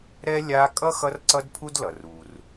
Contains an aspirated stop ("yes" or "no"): yes